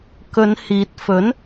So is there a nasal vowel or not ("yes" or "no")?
no